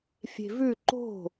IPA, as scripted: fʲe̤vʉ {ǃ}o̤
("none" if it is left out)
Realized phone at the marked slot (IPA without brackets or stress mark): ǃ